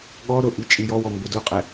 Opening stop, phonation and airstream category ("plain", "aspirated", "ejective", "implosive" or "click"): implosive